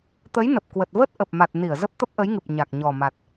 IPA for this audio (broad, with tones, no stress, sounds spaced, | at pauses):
t̪ ə˨˦ j n ə˨˩ p̚ k w ə˨˩ t̚ v ə˦˥ t̚ ʔ ə˨˩ p̚ m a˨˩ t̚ n i˧˩ ə̯ z ə˦˥ p̚ t̪ ə˦˥ p̚ ʔ ə˨˦ j ŋ ɨ˨˩ p̚ ɲ a˨˩ k̚ ɲ ɔ˨˩ m a˨˩ t̚